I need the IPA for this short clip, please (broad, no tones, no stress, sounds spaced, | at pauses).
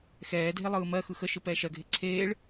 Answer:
x ɛː dʱ e lˠ ɯː m ɜ x ɯ x ə ʃ ɯ p ɛː ʃ ɜ ɡʱ e ǀʰ eː ɭ